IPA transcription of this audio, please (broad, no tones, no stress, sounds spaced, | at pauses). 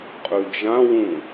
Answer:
qʼ ʉ d͡ʒ ã w ũ